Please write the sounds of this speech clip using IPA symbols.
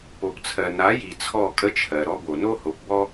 po˨pt͡sʰɜ˨ na˨˦ji˨ t͡sʰɔ˦˨kʼə˦t͡ʃʰɜ˨ ɾɔ˧bo˨no˦ ho˨˦pbɔ˦

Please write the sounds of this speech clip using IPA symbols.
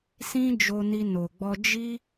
sĩ˦d͡ʒo˧ni˧ no˨ɡ͡bɔ˧ d͡ʒi˦

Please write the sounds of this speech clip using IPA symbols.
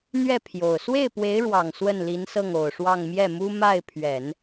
n̪ɥɛ˥˩ pʰjo˨˩ʊ̯ swe˥˩ɪ̯pwe˧˥ɪ̯ɻwɑ˨˩ŋ swə˥˩nli˧˥nsɤ˥˩ŋ o˨˩ʊ̯ʂwɑ˥˧ŋ mjɛ˥˩mu˥ ma˥˩ɪ̯pʰɥɛ˨˩˦n

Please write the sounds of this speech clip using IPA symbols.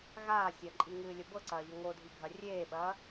ɣaː sʲɐǃʼiŋɨːlʲə bɤǀɐːʎə ŋodʱiɡʱɐ rʲeːɓɐː

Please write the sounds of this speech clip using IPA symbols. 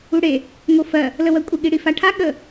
uɽe | ŋofɜ | ləwɜkʷʼə ɠiɽifaʈʰa ɠə

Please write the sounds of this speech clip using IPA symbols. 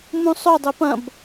mũsˤo dˤøpɐ̃b

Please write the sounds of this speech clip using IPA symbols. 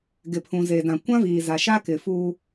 ɡɪ˨pʰũ˨ze˨ dã˨kʷã˦viː˨ za˨ʃa˦ kɪ˨ fuː˦

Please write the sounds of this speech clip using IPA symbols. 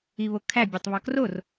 iβokʰæ bʲotˤβɒkror

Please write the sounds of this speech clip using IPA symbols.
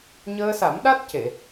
ɲəː˧sa˨˩˦mɗa˦˥t̚ce˨˩˨

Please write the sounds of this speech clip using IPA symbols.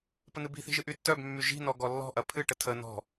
pən̪ɨbi̤θi̤ ʒɨʔytːœbmːy ʒi̤nɔ ɡɔlːɔ̤ʔɐ pʰɨʈə tʰə nɔ̤

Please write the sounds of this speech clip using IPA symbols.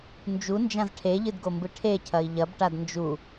nd͡ʒund͡ʒãz ʈʰeʎɨdɡombɨ ʈʰecʰɐi̯ ʎɐbʈad nd͡ʒu

